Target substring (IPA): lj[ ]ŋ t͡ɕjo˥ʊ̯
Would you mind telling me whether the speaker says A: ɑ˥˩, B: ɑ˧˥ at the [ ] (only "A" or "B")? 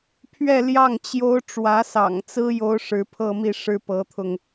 A